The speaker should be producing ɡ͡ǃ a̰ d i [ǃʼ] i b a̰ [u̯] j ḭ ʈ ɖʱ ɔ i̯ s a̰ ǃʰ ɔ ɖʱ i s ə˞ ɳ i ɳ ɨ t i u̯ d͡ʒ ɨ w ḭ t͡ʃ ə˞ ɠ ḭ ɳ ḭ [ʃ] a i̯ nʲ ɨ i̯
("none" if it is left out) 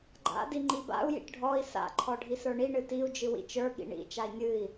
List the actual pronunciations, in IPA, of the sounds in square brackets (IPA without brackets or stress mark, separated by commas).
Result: ŋ͡ǃ, u̯, t͡ʃ